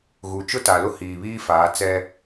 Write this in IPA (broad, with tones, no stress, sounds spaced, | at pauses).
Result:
ɣ u˨ t͡ʃ ʊ˦ t a˨ l ʊ˦ h iː˨ β iː˦ f aː˨˦ t͡s ɛ˦